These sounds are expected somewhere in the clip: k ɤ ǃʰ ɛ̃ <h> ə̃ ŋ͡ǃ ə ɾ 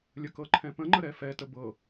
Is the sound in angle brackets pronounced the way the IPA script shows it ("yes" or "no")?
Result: no